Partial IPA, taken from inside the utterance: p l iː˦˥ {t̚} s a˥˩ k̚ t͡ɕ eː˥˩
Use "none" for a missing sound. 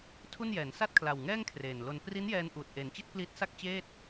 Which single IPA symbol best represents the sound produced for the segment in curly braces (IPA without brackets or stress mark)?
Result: t̚